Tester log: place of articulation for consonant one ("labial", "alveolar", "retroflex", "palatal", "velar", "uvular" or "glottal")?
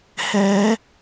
glottal